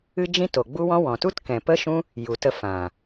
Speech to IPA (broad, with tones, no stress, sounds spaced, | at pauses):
ɨ˦ d͡ʒ ĩ˦ t o˨ ɡ͡b u˦ w ɔ̃˦ w ɔ̃˨ t u˦ t k ɛ̃˨ p ə˦ ʃ ũ˦ | j u˨ t ə˧ f ã˨